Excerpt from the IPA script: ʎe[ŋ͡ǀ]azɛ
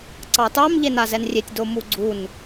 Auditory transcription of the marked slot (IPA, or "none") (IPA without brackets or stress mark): n